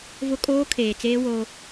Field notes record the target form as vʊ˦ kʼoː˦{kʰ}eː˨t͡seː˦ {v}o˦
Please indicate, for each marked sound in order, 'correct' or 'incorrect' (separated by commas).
correct, incorrect